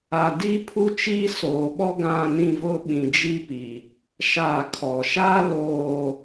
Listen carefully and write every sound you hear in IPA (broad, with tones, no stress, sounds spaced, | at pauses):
a˨ d iː˦ pʰ u˦ t͡ʃ iː˦ s oː˨ ɓ ɔ˦ ɡ ã˦˨ n ĩ˦˨ v ʊ˦ ɓ ĩ˨ d͡ʒ i˦ p i˨ | ʃ a˦˨ kʰ ɔ˨ ʃ a˦ l oː˨